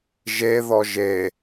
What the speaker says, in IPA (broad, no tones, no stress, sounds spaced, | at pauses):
ʒ e ð ɔ ʒ e